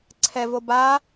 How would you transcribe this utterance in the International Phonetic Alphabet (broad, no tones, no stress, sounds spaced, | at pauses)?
ǀʰ ɛ v o b a